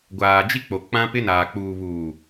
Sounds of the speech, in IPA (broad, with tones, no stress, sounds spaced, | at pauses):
ɡʷ aː˨ d͡ʒ i˦ k͡p o˨ k͡p ã˦ p ɪ˦ n aː˨ k͡p uː˨ β uː˨